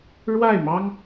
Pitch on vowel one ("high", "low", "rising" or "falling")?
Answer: falling